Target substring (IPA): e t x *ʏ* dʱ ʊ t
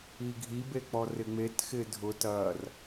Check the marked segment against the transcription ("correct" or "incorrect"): incorrect